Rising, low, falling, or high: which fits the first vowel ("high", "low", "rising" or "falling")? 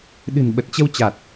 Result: low